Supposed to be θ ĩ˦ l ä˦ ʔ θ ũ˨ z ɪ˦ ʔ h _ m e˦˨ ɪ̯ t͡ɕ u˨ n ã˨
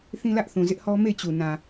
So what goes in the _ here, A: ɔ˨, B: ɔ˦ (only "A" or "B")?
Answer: B